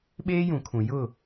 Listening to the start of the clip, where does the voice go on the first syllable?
high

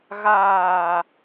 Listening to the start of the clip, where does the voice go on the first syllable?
low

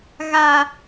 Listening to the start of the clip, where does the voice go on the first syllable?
low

